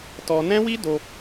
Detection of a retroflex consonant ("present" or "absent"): absent